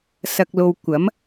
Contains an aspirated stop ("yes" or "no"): no